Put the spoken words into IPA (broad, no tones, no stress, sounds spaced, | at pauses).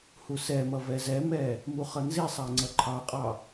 h u s ɛ m ʌ v ɛ z ɛ m ɛ | m u χ ʌ n z i sˤ æ ŋ͡ǀ ʌ ǃʰ ɑ qʼ ɑ